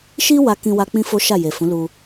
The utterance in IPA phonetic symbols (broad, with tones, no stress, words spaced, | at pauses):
ʃi˦ wa˧kĩ˧wa˧ k͡pĩ˦fo˦ʃa˦˨je˨ fũ˨˦lu˧